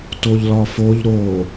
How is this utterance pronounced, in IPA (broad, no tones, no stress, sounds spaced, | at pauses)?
t o ʎ l ɒ f o ʎ ɾ o